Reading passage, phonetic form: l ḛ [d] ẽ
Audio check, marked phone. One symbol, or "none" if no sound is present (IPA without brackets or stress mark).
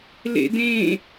d